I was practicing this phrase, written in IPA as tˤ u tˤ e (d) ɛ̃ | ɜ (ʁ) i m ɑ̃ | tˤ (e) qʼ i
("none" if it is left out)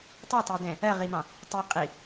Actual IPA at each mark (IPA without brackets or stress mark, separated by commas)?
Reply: d, ʁ, i